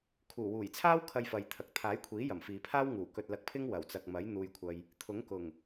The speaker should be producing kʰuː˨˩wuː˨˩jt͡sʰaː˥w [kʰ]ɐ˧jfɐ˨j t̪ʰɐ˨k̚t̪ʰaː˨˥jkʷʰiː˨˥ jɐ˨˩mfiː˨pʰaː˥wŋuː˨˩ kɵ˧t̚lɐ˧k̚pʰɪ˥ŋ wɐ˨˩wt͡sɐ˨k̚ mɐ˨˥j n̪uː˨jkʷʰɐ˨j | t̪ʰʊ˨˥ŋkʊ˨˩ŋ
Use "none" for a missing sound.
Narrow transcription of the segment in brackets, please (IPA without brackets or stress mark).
kʰ